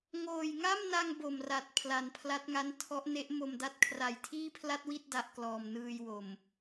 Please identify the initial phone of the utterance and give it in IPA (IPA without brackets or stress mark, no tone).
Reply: ŋ